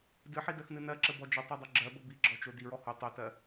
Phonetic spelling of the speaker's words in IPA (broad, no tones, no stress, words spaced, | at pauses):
dɨħidɜxnɨ nɜǁəbɔ d͡ʒɔtˤɜdˤo ɡ͡ǁɜbə biɡ͡ǁɔt͡ʃo diɹɔ ho tˤotɜ